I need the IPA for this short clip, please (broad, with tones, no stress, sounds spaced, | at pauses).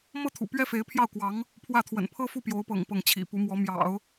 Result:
m ɤ˥ t̪ʰ ṵ˨˩ p ɥ ɛ˥ f e˧˥ ɪ̯ pʰ j ɑ˥˩ ʊ̯ k w ɑ˧˥ ŋ | pʰ w ä˥˩ t̪ʰ w ə̰˨˩ n pʰ ɤ˥ f u˥˩ p j o˧˥ ʊ̯ p ɤ̰˨˩ ŋ p ɤ˥˩ ŋ t͡ɕʰ ḭ˨˩ p u˧˥ m w ɔ˧˥ m j ɑ̰˨˩˦ ʊ̯